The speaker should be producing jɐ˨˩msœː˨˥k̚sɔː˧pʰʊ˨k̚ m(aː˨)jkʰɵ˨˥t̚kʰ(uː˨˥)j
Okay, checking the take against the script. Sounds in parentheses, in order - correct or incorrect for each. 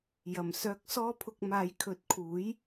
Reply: correct, correct

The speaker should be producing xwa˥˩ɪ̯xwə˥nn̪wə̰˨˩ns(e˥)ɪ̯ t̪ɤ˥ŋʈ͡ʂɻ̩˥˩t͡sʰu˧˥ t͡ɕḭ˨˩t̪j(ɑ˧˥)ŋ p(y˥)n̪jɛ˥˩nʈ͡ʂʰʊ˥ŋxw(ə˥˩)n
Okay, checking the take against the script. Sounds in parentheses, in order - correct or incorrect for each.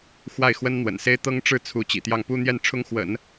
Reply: correct, incorrect: ɑ˥˩, incorrect: u˥, incorrect: ə̰˨˩˦

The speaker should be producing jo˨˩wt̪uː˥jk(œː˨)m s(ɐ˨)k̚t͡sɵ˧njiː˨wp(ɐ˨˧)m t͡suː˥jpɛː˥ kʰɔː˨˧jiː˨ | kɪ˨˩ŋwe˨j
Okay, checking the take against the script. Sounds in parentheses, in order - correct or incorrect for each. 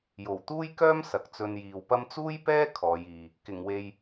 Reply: incorrect: œː˥, correct, incorrect: ɐ˥

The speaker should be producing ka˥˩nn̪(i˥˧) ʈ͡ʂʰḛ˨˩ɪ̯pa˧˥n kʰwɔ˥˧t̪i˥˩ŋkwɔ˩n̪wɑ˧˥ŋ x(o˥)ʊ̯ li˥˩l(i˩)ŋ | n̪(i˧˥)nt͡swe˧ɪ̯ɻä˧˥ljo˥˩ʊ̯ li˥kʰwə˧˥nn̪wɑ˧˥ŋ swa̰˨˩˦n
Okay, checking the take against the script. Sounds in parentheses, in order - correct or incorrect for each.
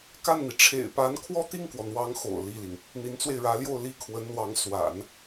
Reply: incorrect: i˩, incorrect: o̰˨˩, correct, correct

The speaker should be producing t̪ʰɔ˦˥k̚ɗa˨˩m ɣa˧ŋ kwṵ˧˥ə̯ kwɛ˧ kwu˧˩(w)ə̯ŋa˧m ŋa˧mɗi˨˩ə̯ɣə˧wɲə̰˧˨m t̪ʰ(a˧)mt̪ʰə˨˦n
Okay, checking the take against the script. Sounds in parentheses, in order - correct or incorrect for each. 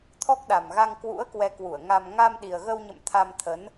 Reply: incorrect: none, correct

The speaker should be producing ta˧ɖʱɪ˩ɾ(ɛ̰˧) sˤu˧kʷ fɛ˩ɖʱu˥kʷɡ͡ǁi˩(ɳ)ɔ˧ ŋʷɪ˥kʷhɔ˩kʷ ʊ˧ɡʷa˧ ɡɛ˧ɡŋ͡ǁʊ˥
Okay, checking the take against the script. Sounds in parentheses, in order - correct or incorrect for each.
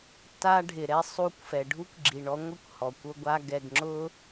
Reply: incorrect: ɛ˧, correct

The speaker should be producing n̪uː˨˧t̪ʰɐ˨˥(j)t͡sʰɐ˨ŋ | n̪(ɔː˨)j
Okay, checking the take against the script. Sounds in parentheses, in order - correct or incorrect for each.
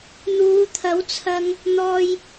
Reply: incorrect: w, correct

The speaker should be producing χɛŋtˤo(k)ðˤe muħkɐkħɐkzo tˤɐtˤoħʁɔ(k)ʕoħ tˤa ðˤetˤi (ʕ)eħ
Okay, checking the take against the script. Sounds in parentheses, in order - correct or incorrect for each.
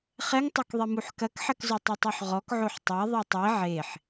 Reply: correct, correct, correct

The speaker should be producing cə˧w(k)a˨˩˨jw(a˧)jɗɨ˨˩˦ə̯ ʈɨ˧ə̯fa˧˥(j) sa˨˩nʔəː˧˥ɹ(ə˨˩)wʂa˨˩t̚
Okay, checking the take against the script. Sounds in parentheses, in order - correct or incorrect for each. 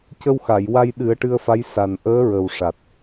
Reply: incorrect: x, correct, correct, correct

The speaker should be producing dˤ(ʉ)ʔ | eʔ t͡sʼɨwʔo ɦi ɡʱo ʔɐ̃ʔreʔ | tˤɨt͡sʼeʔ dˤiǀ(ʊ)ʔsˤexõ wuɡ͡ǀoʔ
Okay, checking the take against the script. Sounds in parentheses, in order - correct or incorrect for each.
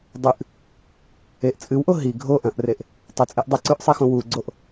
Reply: correct, incorrect: ʉ

